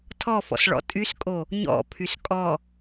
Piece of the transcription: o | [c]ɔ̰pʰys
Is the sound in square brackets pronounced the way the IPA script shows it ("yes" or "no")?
no